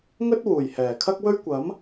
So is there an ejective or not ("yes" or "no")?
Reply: no